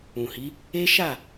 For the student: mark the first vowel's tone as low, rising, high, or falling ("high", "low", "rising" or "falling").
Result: low